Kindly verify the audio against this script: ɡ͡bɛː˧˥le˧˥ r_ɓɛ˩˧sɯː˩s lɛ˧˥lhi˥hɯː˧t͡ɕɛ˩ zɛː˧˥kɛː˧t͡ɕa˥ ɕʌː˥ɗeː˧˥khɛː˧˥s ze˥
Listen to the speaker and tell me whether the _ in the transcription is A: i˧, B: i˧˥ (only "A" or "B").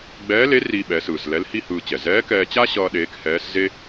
A